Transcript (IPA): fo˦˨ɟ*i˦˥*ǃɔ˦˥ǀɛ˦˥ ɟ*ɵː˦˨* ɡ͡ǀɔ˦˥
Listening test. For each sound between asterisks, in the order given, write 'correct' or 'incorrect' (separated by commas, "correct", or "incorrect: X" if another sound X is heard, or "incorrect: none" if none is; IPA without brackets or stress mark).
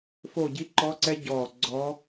correct, incorrect: ɔː˦˨